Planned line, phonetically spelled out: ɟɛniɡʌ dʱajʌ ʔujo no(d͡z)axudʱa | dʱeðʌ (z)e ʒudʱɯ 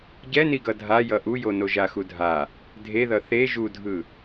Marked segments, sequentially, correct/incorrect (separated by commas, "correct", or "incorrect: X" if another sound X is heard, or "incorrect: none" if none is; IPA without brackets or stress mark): incorrect: ʒ, incorrect: θ